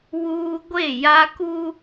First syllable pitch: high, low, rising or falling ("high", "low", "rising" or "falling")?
high